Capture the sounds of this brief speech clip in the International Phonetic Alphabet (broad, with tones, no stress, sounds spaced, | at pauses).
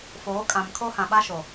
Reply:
f oː˨˦ kʼ ã˨ m kʰ o˦ h ã˨ ɓ a˦ ʃ o˨